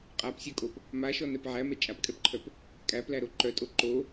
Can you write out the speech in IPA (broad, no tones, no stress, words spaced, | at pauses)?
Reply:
qʼapsʲœkʼop | maʃɔnɛp ʕæmɛ t͡ʃʼapkʼɛpǃʰœp | kʼæplæɾo ǃœtʼo ǃo